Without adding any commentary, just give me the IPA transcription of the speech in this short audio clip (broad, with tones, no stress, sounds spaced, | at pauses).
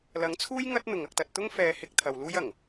l ɐ˨˥ ŋ t͡sʰ uː˥ j ŋ ɐ˥ t̚ n̪ ʊ˨ ŋ ɐ˧ k̚ t̪ ɐ˧ t̚ t̪ ʊ˥ ŋ f ɛː˧ h ɪ˧ k̚ t̪ʰ ɐ˨ w l uː˥ j ɐ˨˩ ŋ